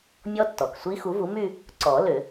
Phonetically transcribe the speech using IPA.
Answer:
mʲ ɔ˦˥ tː ɔ˩ k sʷ i˦˥ x u˩˥ v u˩˥ m y˥˧ | ǀ ɔ˨˩˦ l ʏ˨˩˦

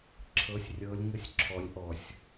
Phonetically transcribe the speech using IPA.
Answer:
ǁʰ ɤ˩˧ sʲ rʲ ɤ˩˧ lʲ ŋ ə˩˥ sʲ ǁʰ ɔ˩˧ lʲ ʔ ɔ˩ sʲ

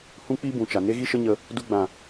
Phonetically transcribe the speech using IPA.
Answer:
h ũ˦ k͡p i˦ b ũ˨ t͡ʃ a˨ n e˦ ɣ i˦ ʃ ə˦ ɲ ə˧ | d u˧ ɡ͡b ã˨

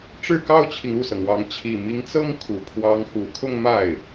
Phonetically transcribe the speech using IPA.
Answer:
ʈ͡ʂ ɻ̩˥˩ k ɑ˥ ʊ̯ t͡ɕʰ i˨ ŋ u˥˩ s ɤ˩ ŋ w ɑ˧˥ ŋ t͡ɕʰ i˨˩ m i˧˥ ŋ t͡s ɤ˥ ŋ kʰ u˨˩ pʰ w ɑ˧˥ ŋ x u˨˩ kʰ ʊ˥˧ ŋ m a˥˩ ɪ̯

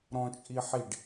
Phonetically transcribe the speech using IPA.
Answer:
ɾ ɔ̃ t͡ʃʼ i ħ i ɖ

